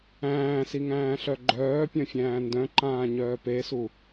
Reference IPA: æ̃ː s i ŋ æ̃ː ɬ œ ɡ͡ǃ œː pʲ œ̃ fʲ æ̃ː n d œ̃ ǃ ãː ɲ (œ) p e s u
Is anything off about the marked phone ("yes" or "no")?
yes